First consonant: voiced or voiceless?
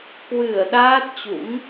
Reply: voiceless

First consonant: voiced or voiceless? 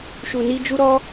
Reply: voiceless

